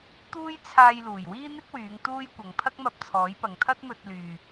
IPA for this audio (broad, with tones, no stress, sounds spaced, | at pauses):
t̪ uː˥ j t͡sʰ aː˧ j l uː˨˩ j w iː˥ n̪ ɪ˥ k̚ w yː˨˧ ŋ t̪ uː˥ j kʷ ɐ˨ ŋ pʰ ɐ˥ k̚ m ɐ˧ p̚ t͡sʰ ɔː˨˥ j p ɐ˨ ŋ t̪ʰ ɐ˥ t̚ m ɵ˧ t̚ l yː˧